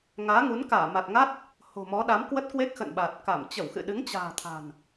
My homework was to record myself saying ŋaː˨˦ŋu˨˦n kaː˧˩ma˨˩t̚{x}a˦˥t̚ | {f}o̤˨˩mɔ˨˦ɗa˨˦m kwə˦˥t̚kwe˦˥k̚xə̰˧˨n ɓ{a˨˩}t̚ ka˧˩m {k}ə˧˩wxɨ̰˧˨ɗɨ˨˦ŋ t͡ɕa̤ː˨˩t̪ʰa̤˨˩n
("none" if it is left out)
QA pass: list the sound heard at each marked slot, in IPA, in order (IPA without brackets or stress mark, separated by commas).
ŋ, h, a˨˩, t͡ɕ